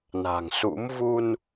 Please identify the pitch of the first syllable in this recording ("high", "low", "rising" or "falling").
low